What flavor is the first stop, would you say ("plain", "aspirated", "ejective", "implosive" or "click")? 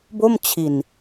plain